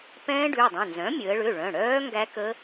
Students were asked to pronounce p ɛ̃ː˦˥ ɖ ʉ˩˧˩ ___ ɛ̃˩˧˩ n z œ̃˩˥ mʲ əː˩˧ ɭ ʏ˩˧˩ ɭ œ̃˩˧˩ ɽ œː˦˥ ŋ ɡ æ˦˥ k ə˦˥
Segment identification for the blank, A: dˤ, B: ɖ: A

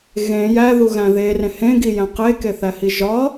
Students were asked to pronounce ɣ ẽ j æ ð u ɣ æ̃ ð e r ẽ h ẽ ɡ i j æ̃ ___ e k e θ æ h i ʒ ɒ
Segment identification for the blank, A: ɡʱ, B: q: B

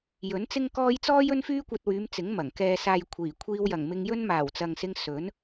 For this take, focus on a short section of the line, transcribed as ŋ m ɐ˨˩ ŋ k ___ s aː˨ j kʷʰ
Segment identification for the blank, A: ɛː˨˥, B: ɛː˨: B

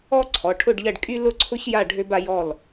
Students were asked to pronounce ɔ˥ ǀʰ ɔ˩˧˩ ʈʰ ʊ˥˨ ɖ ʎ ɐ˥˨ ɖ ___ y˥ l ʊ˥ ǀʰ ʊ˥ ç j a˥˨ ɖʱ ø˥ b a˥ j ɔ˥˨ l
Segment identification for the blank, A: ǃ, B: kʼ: B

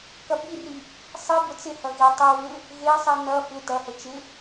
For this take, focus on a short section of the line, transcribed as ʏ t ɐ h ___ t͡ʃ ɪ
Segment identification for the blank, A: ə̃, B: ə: B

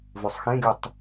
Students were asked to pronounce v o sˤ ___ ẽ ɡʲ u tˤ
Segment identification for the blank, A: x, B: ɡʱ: A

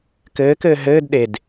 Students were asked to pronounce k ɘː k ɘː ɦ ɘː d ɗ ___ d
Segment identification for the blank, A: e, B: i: A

